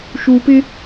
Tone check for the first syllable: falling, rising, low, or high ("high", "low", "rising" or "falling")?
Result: low